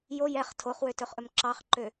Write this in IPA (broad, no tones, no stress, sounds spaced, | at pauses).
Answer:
j o j ɛ χ tʰ o χ w ø t ɵ χ ʔ ɵ m ǁ ɑ χ ǃ ø